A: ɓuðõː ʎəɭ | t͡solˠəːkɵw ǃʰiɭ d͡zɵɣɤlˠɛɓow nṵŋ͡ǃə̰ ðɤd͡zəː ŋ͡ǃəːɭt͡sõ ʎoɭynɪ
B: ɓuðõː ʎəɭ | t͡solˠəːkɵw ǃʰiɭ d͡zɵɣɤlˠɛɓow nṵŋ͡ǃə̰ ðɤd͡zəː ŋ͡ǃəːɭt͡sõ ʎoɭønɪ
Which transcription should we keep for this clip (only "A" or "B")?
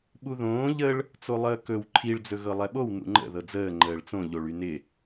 A